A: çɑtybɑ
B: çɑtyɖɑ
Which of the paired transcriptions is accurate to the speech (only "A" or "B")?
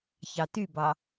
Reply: A